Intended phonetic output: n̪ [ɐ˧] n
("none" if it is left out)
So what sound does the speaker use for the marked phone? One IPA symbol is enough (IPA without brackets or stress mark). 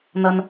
ɐ˧